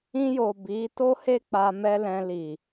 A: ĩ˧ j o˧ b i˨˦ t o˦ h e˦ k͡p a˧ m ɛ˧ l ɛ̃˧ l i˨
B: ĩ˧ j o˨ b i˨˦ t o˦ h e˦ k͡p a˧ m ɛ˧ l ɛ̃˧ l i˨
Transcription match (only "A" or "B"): B